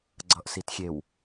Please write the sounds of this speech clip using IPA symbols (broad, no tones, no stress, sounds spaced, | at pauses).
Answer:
ɡ͡ǀ ʌ ʔ s i t xʲ e w